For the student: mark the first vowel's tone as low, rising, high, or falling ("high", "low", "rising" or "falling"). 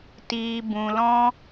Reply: low